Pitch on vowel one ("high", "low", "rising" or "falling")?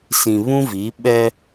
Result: low